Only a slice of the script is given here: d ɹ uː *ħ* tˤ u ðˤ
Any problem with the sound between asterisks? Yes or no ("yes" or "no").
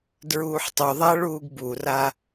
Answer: no